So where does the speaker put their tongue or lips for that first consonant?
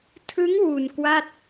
tongue tip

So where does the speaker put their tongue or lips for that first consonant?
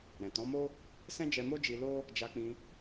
tongue tip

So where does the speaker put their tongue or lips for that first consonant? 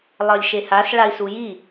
tongue tip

